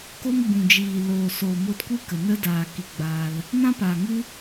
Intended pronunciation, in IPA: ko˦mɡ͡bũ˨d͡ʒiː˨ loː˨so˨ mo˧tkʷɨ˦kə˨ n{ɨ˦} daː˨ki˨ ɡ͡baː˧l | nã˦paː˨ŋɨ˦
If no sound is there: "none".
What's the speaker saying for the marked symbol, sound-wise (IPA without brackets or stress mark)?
ə˦